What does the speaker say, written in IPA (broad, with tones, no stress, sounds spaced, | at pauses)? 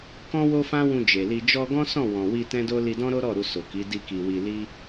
k ɔ̃˦ w o˦ f ã˦ w ũ˧ d͡ʒ e˨ l i˧ d͡ʒ ɔ˧ ɡ ɔ̃˦ s ɔ̃˦˨ w ɔ̃˨ w i˧ t ɛ̃˦ d o˦ l i˧ d ɔ̃˦ ɾ o˦ ɾ ɔ˦˨ ɾ u˧ s o˨ k i˨˦ d i˦ k i˧ w i˧ l i˦